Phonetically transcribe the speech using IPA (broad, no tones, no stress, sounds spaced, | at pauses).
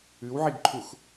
ʉ w ʕ i ɡ ǃʰ u x